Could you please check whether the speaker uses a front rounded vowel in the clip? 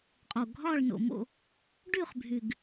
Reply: yes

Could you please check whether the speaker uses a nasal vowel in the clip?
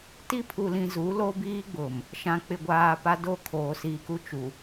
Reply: yes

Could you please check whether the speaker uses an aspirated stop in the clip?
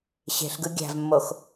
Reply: no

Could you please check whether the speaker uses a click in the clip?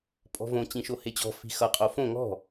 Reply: no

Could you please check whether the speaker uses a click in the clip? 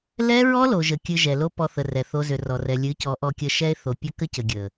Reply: no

